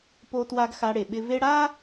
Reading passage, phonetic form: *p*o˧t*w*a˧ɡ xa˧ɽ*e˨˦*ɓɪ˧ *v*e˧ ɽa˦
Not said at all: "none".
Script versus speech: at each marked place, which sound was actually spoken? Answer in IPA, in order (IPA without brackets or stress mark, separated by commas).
p, w, e˨, v